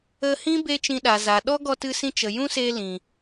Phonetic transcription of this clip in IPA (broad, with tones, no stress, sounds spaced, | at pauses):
ə˧ h ĩ˦ b e˦ t͡ʃ ĩ˧ ɗ a˨ z a˨ ɗ ɔ˦ ɡ ɔ˧ t ɨ˧ s ĩ˧ t͡ʃ ə˨ j ũ˦ s e˧ l ĩ˨